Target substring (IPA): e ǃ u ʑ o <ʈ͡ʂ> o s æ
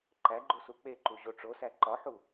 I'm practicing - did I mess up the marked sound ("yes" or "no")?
no